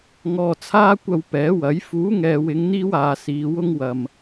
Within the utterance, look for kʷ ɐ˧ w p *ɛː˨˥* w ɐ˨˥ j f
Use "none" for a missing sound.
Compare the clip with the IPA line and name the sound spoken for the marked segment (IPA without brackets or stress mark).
ɛː˨˥